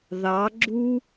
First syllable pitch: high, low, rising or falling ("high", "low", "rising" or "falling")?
rising